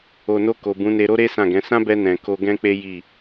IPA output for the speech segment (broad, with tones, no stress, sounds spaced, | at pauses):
o˨ n o˧ k o˨ b ũ˨˦ n e˧ ɾ o˦ ɾ e˦ s ã˦˨ ɡ ɛ̃˨˦ s ã˦ b ɛ˧ n ɛ̃˨ k o˧ ɡ ɛ̃˦ k͡p e˦ j i˦˨